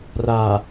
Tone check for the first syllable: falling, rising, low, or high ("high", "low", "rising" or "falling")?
low